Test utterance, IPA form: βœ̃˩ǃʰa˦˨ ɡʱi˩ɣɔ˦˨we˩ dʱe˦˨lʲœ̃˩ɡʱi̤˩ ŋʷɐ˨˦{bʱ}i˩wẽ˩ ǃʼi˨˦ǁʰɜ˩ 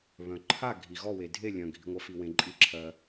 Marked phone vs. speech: incorrect: f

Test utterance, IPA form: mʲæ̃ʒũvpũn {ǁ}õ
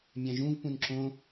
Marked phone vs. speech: correct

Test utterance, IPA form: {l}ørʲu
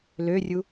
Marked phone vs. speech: correct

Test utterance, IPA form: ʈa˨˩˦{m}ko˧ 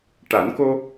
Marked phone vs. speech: incorrect: n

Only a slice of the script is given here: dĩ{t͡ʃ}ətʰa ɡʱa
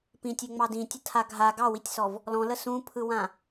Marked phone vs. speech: incorrect: tʲ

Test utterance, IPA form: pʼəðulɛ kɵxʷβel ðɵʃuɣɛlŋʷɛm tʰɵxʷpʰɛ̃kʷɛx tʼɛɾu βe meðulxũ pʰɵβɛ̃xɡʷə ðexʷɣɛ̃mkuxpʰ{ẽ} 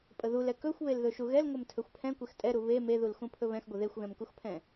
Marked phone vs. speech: incorrect: ɛ̃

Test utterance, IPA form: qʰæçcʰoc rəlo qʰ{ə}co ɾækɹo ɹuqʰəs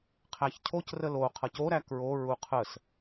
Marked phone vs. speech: incorrect: ʌ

